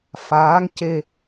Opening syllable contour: rising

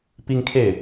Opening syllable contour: high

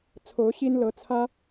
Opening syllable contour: rising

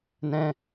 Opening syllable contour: high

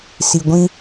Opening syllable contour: low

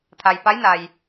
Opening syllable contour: low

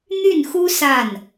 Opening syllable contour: falling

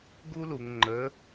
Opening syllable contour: high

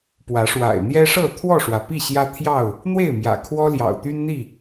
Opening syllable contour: rising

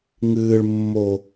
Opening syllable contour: low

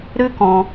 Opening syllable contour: high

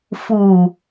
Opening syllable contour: low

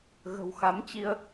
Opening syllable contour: low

